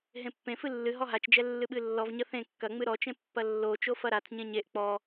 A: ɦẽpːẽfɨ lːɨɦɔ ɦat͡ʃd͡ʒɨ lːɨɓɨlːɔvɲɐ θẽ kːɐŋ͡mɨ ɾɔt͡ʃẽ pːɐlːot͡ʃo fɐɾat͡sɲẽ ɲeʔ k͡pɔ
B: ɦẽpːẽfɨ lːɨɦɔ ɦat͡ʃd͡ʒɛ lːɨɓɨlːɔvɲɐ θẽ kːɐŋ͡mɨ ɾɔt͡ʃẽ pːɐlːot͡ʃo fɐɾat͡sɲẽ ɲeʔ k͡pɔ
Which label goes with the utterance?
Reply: B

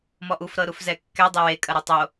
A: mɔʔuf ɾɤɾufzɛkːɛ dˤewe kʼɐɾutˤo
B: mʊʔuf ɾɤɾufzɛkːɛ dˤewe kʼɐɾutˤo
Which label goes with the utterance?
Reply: A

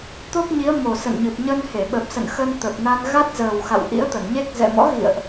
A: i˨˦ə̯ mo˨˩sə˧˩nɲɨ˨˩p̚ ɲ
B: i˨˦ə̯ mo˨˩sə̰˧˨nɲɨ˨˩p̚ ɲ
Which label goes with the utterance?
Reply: B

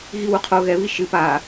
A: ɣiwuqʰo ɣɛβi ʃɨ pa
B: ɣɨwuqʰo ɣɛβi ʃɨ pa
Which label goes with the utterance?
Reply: A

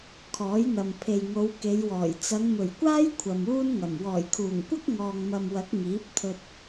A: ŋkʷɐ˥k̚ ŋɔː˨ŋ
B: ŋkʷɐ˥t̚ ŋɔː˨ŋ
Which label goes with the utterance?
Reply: A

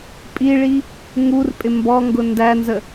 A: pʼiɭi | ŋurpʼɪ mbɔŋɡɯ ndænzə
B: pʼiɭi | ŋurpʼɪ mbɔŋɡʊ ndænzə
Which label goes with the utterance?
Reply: B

